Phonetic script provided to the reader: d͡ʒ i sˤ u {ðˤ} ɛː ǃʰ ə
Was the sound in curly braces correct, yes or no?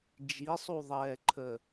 yes